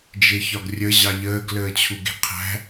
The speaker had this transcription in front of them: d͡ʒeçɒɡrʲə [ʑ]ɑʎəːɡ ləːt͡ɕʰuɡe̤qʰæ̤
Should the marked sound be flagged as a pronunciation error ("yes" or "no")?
no